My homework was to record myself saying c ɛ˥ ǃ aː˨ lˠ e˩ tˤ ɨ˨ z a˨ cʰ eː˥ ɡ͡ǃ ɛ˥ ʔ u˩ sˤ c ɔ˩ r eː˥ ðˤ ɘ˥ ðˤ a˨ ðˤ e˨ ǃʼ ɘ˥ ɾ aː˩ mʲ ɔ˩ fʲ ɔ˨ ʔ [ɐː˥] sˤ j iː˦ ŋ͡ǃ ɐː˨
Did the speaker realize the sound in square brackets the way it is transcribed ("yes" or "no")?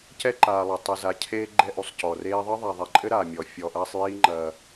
no